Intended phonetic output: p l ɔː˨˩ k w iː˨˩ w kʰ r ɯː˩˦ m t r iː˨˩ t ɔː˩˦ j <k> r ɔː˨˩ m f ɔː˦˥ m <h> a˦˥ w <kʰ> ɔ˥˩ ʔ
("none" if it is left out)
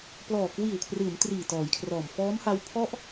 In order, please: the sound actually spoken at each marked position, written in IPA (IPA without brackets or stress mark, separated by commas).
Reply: kʰ, h, pʰ